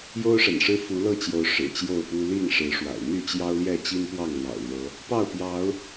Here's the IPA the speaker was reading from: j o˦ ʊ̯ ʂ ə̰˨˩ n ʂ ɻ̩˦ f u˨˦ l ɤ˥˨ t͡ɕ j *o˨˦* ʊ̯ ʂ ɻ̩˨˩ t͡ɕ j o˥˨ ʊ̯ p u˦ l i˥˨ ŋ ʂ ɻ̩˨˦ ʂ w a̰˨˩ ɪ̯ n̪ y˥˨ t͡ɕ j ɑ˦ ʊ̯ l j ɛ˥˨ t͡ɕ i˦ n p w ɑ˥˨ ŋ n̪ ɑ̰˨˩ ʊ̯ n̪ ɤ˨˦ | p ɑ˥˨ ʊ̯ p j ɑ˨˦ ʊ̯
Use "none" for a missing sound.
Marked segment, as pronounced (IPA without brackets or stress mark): o˨˦